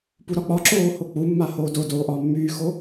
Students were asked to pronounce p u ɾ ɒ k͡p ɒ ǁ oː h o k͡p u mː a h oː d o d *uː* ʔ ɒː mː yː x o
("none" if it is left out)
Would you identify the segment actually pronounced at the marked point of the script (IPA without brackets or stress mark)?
oː